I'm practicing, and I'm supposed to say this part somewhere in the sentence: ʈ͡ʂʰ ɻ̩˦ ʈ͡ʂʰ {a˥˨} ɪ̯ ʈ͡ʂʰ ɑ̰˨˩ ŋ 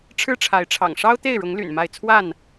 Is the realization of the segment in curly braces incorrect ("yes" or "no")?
yes